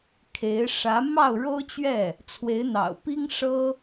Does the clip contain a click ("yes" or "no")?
no